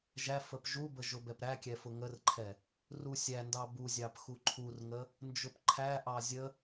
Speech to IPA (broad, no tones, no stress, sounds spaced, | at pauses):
ʒ æ f ə p ʒ u b ə ʒ ʊ b ɛ p ɾ æ kʲ ɛ f ʊ ŋ ə r ǃʰ ɛ | r u sʲ æ n d ɑ b u zʲ ɑ p x u ǃʰ u r ŋ ə | n d͡ʒ ʊ p ǃʰ æ ʔ ɑ zʲ ə